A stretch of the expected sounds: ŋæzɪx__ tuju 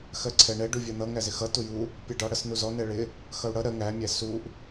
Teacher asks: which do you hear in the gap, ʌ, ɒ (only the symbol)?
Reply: ʌ